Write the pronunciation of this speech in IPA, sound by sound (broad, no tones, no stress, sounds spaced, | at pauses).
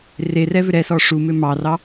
r e r ɛ v ʏ ɾ ɛ s ɔ ʂ u m ʏ m ɑ r ɑ